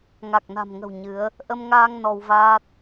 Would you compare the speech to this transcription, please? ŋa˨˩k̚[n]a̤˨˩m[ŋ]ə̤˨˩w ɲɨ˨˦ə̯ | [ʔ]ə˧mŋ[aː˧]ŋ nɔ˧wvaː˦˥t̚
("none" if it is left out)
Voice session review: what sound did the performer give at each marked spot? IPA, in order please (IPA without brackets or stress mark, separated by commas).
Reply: n, ŋ, ʔ, aː˧